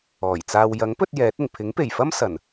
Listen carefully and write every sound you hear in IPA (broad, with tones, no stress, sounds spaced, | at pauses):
ɔː˨˩ j t͡s aː˧ w j ɐ˨˥ ŋ p ɵ˧ t̚ j ɛː˨˥ t̚ ɪ˨˩ ŋ pʰ ɪ˨˥ ŋ p e˨˩ j f ɐ˥ m s ɐ˨˩ n